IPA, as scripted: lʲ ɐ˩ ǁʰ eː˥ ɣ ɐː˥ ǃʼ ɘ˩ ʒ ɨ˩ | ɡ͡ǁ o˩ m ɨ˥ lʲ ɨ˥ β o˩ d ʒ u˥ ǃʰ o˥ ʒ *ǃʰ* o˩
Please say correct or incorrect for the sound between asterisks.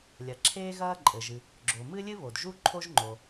incorrect